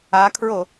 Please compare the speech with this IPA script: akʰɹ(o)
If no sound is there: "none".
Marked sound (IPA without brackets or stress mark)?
o